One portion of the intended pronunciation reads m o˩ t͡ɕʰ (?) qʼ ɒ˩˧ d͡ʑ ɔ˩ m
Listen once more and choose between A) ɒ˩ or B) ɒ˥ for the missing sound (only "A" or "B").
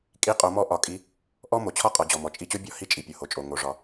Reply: B